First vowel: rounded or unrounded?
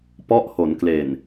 rounded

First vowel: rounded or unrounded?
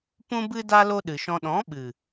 rounded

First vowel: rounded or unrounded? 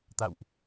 unrounded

